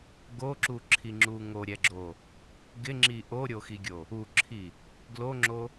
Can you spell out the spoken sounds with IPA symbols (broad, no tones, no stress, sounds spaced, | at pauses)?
ɡ o ǁ u ǁʰ i ŋ͡ǁ u ŋ o ɾʲ ɛ ɡ͡ǁ o | ɡ ɪ ŋ͡ǁ i ʔ o ɾʲ o x i ɡʲ o | u ǁʰ i | ɡ l o ŋ͡ǁ o